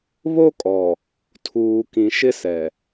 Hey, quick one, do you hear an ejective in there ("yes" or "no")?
yes